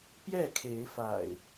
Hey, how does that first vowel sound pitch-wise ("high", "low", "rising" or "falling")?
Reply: falling